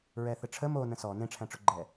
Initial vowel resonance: oral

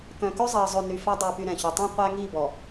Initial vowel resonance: nasal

